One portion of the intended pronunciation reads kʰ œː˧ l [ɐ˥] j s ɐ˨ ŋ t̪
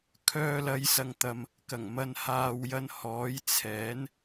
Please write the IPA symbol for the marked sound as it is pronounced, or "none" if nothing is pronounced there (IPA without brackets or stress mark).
ɐ˨˧